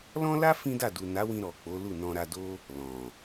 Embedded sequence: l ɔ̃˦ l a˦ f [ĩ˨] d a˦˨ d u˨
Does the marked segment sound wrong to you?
yes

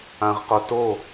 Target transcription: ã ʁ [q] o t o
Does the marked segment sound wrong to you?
no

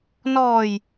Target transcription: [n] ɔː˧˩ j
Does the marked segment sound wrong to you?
no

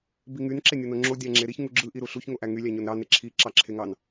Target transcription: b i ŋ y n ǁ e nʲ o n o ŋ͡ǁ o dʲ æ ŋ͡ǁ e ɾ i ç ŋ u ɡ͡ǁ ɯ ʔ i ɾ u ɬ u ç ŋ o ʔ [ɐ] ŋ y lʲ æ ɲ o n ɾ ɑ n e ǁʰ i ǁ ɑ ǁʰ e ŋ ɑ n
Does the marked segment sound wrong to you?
yes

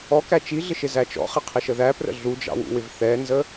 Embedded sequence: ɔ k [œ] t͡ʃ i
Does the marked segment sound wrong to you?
yes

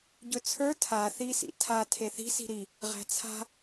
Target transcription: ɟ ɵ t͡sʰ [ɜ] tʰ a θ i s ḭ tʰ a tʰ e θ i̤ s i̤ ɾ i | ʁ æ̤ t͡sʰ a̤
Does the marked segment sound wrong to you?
yes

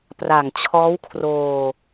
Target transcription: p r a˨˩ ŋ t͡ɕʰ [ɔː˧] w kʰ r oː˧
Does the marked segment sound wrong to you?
yes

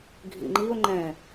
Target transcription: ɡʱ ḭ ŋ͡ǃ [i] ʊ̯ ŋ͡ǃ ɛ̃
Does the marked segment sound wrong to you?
no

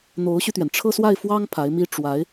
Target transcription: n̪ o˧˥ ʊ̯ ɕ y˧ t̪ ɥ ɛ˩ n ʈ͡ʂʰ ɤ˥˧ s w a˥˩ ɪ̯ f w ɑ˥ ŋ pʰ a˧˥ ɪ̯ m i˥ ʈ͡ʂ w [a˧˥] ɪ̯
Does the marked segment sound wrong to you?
no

